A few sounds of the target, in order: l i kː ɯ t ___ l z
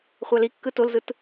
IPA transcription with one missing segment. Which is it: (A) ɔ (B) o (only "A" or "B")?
B